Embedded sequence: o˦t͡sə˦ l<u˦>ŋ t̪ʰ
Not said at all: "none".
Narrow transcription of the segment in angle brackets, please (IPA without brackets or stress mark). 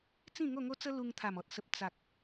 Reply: u˧